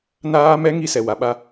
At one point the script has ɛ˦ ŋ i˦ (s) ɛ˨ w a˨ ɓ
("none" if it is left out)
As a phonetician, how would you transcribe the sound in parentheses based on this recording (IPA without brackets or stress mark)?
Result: s